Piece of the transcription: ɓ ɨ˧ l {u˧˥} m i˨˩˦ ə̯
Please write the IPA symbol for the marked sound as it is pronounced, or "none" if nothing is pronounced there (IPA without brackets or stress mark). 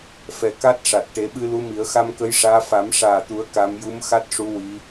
u˧˥